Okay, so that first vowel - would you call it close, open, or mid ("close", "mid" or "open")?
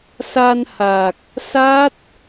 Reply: open